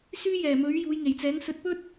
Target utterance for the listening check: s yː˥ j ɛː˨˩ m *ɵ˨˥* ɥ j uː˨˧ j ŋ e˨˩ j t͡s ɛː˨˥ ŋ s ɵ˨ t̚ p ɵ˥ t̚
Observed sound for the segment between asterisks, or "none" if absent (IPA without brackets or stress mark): ɵ˨˥